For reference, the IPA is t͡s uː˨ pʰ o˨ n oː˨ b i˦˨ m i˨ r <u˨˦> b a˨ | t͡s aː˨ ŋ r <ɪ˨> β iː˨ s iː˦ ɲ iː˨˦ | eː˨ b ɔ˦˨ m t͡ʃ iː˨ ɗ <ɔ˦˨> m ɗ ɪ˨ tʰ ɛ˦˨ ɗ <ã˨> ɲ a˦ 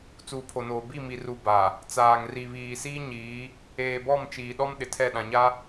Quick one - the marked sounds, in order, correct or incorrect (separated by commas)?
incorrect, incorrect, incorrect, correct